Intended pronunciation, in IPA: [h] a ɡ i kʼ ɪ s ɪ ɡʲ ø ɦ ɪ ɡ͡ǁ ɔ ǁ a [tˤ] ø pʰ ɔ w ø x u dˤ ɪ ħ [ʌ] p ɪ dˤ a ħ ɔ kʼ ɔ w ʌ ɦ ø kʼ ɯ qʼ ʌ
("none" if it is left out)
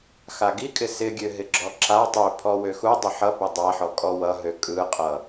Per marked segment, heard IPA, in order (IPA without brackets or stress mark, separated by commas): x, tˤ, ʌ